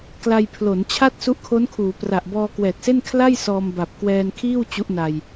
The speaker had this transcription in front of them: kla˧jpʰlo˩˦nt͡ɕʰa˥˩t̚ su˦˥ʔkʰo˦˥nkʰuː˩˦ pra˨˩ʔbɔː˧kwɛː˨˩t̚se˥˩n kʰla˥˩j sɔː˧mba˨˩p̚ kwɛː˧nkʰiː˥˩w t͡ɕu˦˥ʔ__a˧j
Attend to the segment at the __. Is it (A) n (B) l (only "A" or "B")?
A